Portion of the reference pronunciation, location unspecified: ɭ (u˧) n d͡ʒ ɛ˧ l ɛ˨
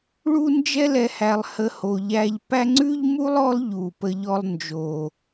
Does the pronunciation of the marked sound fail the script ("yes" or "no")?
no